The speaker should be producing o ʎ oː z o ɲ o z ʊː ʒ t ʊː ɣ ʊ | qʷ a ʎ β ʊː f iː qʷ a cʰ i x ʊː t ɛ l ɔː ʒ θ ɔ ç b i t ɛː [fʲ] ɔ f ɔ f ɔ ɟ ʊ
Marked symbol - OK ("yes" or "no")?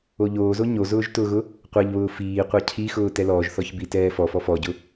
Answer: no